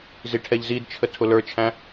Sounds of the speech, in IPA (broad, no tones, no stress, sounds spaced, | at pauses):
z i ʈʰ ɛ ʎ z i d t͡ʃʰ ə tʰ ʊ l ə˞ t͡ʃʰ æ̃